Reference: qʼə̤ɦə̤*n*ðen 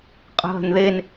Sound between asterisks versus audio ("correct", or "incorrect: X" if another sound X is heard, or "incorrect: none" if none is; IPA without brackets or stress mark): correct